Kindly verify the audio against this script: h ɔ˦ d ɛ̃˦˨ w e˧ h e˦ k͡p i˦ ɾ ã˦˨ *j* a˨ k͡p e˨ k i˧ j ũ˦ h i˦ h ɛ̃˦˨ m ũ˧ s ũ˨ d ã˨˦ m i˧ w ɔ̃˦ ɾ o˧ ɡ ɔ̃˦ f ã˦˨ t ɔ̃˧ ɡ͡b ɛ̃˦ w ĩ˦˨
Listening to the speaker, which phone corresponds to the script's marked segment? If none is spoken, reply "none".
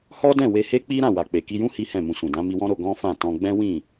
w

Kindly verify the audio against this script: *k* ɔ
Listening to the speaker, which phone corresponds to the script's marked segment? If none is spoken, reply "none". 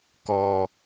k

